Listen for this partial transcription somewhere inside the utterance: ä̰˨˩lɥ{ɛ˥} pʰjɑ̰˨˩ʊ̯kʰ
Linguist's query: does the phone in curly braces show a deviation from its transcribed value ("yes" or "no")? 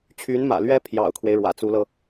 no